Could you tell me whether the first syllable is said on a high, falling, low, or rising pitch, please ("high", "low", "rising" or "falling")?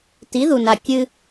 rising